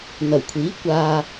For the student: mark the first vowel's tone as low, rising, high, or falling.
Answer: low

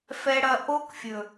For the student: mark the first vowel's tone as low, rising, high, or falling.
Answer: low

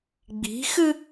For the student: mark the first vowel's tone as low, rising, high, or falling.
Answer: rising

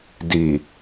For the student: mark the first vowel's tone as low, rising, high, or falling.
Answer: low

